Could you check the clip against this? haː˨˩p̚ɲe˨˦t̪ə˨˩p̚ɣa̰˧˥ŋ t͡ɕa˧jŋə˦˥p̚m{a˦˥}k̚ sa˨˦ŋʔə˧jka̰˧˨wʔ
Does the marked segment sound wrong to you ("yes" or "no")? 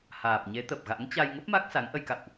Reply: no